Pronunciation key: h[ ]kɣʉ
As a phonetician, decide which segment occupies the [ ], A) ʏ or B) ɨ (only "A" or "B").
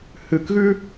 B